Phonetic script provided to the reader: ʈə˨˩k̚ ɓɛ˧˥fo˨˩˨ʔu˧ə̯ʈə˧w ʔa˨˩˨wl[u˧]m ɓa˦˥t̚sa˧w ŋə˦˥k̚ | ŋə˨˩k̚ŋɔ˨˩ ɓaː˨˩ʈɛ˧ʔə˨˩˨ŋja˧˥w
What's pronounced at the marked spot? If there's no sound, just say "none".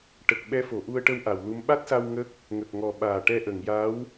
u˧˥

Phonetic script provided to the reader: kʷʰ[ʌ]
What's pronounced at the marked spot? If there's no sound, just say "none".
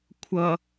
ʌ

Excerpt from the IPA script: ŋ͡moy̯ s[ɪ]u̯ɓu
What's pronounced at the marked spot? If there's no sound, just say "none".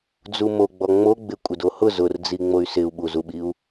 ɪ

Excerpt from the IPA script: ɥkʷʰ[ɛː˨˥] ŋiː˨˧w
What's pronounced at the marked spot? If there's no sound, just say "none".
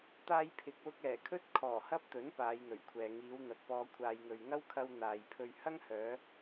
ɛː˨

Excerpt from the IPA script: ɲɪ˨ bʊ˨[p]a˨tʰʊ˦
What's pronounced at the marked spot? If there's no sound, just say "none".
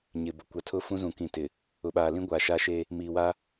kʷ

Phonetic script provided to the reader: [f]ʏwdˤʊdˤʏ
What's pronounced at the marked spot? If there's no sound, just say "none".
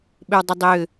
ɓ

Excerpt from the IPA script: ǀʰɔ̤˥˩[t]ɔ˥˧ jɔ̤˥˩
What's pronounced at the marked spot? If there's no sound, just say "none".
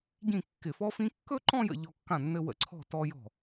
t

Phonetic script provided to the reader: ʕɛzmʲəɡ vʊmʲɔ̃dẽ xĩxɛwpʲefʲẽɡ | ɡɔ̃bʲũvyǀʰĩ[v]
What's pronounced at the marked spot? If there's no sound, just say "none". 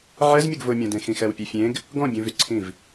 v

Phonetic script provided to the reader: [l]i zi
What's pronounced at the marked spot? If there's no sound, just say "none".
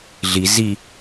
ɮ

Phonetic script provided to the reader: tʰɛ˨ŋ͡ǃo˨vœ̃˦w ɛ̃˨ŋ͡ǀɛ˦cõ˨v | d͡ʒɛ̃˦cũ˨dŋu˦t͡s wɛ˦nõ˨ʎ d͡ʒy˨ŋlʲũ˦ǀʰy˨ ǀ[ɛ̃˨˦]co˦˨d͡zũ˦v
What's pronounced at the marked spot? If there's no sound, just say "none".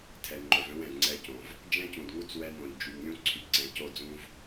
ɛ̃˨˦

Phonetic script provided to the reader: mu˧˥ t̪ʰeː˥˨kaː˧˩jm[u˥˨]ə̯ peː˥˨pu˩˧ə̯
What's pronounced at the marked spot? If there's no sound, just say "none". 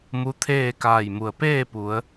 u˩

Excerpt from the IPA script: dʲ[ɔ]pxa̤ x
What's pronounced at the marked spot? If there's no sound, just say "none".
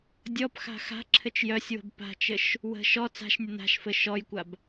ɔ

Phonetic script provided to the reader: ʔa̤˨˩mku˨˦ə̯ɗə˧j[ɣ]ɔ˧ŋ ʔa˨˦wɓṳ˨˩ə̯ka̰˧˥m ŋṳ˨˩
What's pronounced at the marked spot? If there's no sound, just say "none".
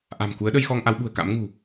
x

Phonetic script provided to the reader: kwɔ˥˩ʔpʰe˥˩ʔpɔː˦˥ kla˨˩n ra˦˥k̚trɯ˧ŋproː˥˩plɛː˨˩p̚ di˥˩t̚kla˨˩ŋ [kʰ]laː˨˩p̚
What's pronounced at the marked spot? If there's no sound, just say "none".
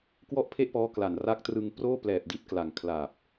kʰ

